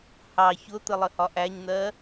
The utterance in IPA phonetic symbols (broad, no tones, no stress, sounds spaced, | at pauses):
h ɑ ç ʊ t̪ ə lˠ ə h ɒ ʔ æ ɲ n̪ ɜ